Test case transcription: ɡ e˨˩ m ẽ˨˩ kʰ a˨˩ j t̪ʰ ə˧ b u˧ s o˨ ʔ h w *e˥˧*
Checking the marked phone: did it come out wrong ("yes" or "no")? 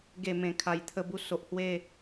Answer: no